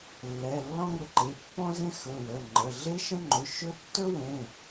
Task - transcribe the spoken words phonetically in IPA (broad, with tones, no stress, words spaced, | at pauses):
lːɛ˩˧˩lːɔ̃˥ŋə˩˧˩ǃe˩˧˩ pːɔ̃˥zẽ˥xɵ˩˧˩wə˩˧˩ ŋ͡ǃə˩˧˩ ɮe˥ ʃə̃˥ŋ͡ǃɵ˩˧˩ʃɵ˥ tːɵ˥wẽ˩˧˩